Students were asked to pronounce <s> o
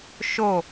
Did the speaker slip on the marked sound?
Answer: yes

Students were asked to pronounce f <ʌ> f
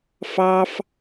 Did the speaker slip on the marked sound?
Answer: yes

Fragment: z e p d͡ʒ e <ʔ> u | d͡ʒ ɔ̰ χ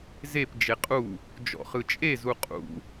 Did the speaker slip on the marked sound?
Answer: yes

